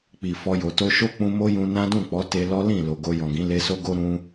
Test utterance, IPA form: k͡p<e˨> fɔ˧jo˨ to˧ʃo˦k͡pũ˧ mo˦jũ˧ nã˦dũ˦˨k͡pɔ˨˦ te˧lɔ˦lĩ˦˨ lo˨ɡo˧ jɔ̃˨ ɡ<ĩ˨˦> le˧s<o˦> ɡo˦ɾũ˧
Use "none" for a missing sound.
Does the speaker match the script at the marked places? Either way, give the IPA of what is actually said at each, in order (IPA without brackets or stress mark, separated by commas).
i˨, ĩ˨˦, o˦